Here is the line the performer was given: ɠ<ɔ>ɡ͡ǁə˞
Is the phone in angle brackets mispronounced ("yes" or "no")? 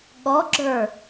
no